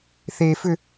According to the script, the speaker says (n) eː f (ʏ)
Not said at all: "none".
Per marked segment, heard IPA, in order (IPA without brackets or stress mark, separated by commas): θ, ʏ